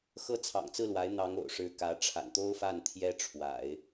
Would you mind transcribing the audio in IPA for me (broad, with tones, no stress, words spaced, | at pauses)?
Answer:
xɤ˥ t͡sʰɑ̰˨˩ŋt͡sɹ̩˥˩lwa˧˥ɪ̯ n̪ɑ˧˥ŋ o̰˨˩ʊ̯ʂɻ̩˧˥ kä˧˥ʈ͡ʂʰa̰˨˩nt̪o˥ʊ̯fa˥˩n t̪ʰjɛ˥ʈ͡ʂʰwa̰˨˩˦ɪ̯